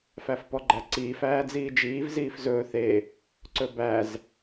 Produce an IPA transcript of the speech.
fæfpɔɡ͡ǃæǀiːf æːd͡ziːd͡ʒiːv ziːfzɵː θe | ǀɵbæz

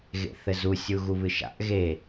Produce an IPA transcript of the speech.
ɣḛθɘzu sʲuɣuβɨʃa̰ʔ ɣe

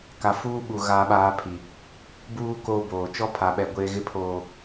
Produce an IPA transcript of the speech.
ka˨fuː˦ɓu˨ ɣaː˦ɓaː˦pʰi˨ | buː˦ koː˦boː˨ t͡ʃɔ˦pʰa˨ɓɛ˨ ɡʷeː˦ ɣɪ˦pʰoː˨

